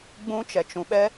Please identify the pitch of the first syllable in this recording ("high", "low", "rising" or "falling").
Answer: high